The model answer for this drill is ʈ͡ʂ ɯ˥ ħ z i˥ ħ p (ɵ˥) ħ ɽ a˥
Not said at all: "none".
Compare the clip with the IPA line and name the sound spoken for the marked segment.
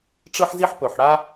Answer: ɵ˨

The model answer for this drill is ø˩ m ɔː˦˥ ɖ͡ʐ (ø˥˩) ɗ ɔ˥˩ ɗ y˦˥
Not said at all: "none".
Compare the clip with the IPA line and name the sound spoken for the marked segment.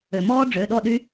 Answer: ø˩˧˩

